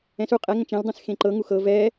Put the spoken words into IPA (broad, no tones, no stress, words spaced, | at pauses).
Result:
ɛ̃su qʼɛ ŋə̃t͡ʃẽldˤɛ̃s xẽǃɤ ŋuxɤ vɛ